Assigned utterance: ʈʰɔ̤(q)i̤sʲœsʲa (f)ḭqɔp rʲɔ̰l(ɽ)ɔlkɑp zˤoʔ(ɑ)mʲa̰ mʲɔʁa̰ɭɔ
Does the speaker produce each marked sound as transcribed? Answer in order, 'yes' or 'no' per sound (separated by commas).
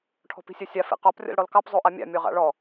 no, yes, yes, no